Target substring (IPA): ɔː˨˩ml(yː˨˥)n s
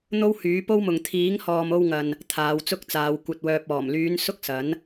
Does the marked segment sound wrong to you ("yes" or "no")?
yes